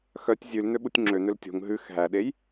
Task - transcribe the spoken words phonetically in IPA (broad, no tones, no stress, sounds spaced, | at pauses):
x œ tʲ zʲ ʉ l n̪ ø ɓ u tʲ ŋ͡ǁ ø n̪ ø l tʲ o̤ ŋ ɦ ʉ x ɦ æ ɗ e j